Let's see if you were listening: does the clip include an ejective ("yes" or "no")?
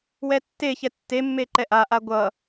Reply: no